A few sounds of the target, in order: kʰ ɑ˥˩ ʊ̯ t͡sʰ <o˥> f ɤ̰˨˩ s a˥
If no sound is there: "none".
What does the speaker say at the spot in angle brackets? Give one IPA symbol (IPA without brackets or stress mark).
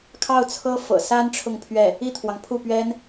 ɤ˥